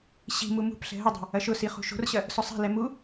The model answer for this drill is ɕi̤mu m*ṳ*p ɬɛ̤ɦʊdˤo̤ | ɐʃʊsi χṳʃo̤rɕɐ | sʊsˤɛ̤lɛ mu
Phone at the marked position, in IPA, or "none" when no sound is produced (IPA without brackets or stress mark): ṳ